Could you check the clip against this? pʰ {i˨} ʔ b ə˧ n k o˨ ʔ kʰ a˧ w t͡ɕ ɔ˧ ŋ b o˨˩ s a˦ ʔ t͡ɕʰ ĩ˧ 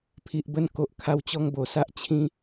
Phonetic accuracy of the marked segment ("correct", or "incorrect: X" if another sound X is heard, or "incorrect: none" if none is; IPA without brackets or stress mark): correct